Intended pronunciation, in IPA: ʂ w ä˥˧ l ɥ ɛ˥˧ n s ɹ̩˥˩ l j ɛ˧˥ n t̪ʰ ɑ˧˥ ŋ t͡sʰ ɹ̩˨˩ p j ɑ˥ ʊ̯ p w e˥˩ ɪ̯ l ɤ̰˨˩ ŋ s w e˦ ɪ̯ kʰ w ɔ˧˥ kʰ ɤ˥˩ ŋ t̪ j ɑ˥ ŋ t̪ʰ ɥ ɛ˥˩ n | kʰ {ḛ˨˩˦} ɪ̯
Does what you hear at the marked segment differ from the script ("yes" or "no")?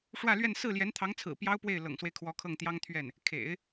no